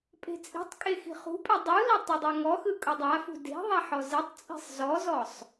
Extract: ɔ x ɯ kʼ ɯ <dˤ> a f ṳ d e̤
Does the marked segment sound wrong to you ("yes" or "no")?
no